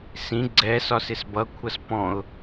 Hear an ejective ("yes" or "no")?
no